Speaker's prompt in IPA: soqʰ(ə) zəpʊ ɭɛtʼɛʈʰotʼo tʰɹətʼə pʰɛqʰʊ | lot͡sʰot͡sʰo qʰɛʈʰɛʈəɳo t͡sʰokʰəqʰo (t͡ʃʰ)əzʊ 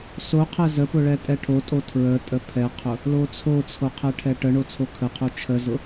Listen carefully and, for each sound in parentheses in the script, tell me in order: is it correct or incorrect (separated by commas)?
incorrect, correct